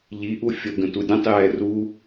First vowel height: high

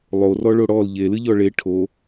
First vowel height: mid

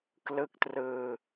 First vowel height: high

